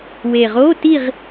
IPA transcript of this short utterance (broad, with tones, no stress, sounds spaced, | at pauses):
w e˨˩ ʁ o˧˥˧ t i˥˧ ʁ